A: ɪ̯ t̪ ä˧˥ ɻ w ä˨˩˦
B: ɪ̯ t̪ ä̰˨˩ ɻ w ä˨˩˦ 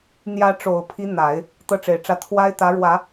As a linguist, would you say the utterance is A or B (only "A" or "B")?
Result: A